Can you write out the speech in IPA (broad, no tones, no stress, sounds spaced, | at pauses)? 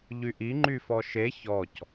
ʎ y ʔ i ŋ͡ǃ y f ɔ ʃ e ç ɔ c